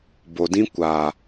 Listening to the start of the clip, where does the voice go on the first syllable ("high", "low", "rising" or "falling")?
low